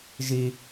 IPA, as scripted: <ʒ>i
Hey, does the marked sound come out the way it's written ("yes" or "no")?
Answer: yes